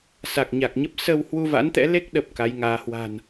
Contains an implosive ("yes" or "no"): yes